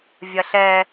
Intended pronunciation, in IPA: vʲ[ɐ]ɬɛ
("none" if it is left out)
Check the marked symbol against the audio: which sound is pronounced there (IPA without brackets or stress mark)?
ɐ